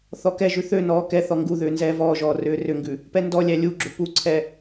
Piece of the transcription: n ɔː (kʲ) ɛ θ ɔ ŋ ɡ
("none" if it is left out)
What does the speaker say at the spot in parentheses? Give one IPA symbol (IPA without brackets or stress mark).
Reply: k